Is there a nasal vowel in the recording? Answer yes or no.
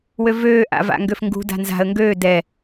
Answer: no